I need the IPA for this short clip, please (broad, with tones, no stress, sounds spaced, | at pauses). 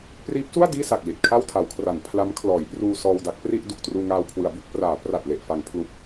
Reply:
p r iː˦˥ p̚ s u˥˩ a̯ d iː˥˩ s a˨˩ k̚ l i˨˩ t̚ kʰ a˥˩ w tʰ a˩˦ w kʰ r a˩˦ n pʰ l a˦˥ m kʰ l ɔː˩˦ j p r uː˧ s ɔː˧ w d a˦˥ k̚ p r i˥˩ ʔ d u˨˩ k̚ t r uː˧ ŋ aː˧ w kʰ w ɯ˩˦ a̯ b u˥˩ k̚ p r aː˩˦ p r a˨˩ t̚ l e˨˩ ʔ f a˩˦ ŋ pʰ l u˨˩ k̚